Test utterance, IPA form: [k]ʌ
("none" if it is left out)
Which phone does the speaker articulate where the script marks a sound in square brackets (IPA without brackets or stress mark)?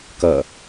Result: k